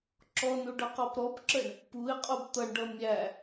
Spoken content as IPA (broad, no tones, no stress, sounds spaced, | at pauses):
ǁ ɔ n u ɖ ʌ q ɔ p ɾ ɔ b ǁ ə ɳ | p u ɪ̯ qʼ u b t̪ ʌ ɳ ɖ ʌ mʲ æ